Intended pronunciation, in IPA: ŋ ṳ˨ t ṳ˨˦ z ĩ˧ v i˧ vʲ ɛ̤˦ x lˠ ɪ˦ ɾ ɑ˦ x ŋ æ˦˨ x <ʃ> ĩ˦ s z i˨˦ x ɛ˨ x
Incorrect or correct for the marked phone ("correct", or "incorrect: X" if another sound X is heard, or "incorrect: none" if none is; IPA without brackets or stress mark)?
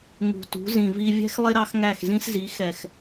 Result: incorrect: z